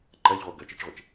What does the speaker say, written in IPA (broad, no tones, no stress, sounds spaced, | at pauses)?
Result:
ǃ ɜ ʎ ʁʷ ɜ ɡ ɜ t͡ʃ i t͡ʃ ʁʷ e t͡ʃ